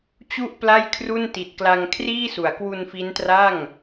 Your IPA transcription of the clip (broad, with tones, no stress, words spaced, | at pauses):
t͡ɕu˥˩ʔpla˥˩jkʰru˥˩n ti˨˩t̚kla˧ŋ kʰriː˥˩su˩˦a̯ kwu˧nfi˦˥ntra˥˩ŋ